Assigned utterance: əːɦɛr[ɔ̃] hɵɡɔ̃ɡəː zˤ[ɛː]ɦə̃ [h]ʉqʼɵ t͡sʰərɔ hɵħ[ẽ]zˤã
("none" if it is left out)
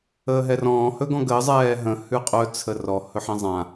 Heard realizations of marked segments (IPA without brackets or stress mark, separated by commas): ɔ̃ː, ɛː, h, ẽ